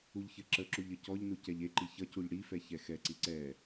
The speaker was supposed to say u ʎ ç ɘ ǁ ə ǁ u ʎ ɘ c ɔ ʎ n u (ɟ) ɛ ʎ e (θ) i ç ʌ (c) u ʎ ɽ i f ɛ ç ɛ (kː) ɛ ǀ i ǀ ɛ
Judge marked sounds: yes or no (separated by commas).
no, no, yes, no